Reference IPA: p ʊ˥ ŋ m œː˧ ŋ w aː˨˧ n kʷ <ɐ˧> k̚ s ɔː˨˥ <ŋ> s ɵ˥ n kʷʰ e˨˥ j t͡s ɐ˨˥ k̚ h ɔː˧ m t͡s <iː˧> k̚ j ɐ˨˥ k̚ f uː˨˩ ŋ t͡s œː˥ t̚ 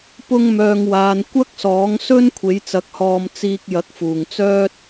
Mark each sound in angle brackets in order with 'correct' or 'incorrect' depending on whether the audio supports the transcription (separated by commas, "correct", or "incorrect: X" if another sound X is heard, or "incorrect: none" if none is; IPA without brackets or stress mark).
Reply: incorrect: ɐ˥, correct, correct